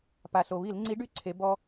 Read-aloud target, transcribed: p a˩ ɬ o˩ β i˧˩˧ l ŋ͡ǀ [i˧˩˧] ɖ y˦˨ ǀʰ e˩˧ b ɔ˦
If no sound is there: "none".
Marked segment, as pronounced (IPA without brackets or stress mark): i˨˥